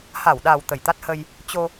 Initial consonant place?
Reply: glottal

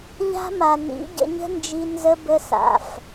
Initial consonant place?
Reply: palatal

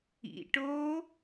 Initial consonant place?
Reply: retroflex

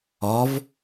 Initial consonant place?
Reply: labial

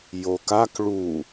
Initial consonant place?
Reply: palatal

